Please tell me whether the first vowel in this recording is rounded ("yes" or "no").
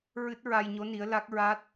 no